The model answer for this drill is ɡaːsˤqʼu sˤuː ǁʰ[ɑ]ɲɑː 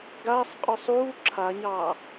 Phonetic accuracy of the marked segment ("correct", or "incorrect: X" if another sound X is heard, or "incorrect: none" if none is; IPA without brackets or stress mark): incorrect: a